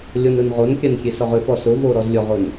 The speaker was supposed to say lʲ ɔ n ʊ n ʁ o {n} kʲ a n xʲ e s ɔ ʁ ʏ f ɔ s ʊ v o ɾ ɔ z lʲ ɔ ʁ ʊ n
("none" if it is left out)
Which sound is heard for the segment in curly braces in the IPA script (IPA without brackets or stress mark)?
n